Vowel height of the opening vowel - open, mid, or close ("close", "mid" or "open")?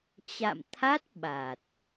open